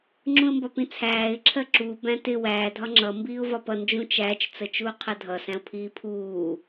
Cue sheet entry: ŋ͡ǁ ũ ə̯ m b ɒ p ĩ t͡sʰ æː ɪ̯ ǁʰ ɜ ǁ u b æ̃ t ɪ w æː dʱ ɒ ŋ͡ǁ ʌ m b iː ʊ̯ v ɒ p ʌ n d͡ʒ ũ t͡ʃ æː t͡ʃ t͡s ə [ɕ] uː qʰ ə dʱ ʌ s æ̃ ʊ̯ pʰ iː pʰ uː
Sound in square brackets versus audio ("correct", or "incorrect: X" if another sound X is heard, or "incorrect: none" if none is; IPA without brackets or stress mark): incorrect: t͡ʃ